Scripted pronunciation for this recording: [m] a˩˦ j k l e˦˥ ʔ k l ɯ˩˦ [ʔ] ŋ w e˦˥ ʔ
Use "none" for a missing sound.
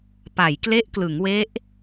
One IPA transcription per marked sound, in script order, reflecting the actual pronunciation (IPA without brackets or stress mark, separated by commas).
p, none